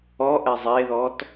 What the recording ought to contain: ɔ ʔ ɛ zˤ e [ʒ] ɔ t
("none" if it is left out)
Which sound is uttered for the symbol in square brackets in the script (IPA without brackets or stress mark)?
ð